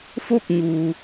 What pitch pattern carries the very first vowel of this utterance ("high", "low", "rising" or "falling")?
falling